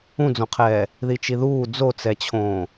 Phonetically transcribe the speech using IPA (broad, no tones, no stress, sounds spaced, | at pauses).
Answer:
ũ d͡z õ qʰ ɛː | ð i t͡ʃ i ð uː d͡z o t͡s ɛ t͡ɕʰ õː